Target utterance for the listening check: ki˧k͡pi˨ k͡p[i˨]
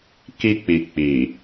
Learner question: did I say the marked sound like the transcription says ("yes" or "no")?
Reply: yes